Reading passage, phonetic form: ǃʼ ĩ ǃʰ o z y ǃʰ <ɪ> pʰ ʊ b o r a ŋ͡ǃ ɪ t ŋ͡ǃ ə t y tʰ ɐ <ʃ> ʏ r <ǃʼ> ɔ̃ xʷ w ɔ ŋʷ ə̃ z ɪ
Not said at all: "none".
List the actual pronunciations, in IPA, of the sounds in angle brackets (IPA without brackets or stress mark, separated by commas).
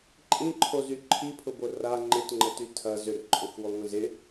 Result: i, z, ǃʼ